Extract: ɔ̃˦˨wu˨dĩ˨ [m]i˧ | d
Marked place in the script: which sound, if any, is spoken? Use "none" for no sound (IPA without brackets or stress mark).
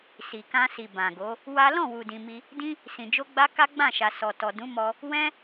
m